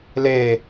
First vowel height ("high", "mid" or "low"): mid